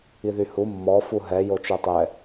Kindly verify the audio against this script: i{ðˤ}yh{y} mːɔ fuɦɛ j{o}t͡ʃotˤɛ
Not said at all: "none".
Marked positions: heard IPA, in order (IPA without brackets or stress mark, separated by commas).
ð, u, o